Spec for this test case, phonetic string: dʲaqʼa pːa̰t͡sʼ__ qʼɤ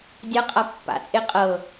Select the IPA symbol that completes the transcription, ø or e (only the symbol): e